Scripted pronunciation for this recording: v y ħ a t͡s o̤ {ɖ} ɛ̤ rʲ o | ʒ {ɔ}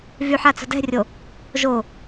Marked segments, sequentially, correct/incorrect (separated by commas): incorrect, incorrect